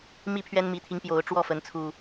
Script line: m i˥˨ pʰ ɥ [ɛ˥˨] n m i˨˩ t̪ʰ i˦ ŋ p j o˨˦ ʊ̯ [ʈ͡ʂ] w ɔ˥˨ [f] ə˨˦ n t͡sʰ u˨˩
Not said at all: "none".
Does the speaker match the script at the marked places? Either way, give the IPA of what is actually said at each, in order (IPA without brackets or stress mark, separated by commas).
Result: ɛ˦, ʈ͡ʂ, f